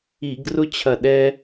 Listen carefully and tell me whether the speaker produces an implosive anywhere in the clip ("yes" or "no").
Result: yes